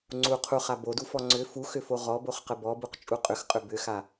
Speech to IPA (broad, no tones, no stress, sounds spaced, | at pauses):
ŋ͡ǀ u qʰ u χ a b o d u f ɔ ŋ͡ǀ ʏ f u x ʏ f o ʁ ɔ b o χ q ə b ɔ b u q t͡ʃʼ u qʼ ʏ x qʼ ʏ b ʏ x a